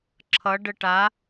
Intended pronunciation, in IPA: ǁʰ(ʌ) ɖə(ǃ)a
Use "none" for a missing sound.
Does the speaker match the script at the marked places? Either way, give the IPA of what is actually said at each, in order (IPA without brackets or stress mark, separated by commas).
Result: ʌ, ʈ